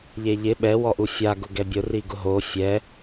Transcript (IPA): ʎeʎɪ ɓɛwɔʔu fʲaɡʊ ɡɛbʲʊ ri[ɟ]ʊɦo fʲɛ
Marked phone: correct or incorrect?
incorrect